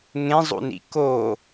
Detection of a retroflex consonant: absent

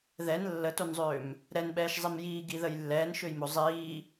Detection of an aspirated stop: absent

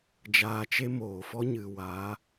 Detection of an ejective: absent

